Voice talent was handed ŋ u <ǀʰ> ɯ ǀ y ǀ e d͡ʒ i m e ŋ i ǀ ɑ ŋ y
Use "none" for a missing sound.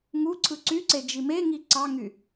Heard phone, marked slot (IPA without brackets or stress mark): ǀʰ